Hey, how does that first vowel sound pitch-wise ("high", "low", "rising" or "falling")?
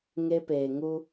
high